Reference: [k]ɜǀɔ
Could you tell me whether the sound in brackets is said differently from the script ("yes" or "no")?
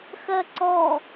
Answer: yes